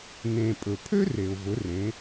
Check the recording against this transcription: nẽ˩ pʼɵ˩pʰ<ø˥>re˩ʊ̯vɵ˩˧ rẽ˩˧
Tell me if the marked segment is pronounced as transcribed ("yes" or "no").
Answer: yes